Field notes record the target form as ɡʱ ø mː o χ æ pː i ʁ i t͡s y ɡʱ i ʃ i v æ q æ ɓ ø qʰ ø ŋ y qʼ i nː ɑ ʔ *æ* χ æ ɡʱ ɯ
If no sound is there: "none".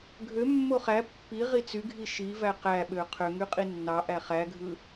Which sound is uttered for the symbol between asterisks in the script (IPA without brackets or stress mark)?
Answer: æ